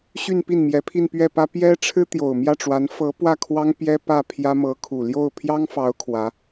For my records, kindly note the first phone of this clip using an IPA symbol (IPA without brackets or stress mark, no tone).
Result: ɕ